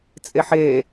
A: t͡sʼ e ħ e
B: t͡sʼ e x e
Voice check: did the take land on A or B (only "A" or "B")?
A